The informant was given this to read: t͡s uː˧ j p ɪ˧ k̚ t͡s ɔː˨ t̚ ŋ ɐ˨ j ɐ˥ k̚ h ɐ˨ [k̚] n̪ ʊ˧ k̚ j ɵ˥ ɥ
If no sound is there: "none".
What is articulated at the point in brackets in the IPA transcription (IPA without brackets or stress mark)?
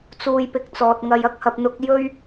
p̚